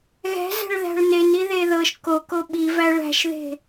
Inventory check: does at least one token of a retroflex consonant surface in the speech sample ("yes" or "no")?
yes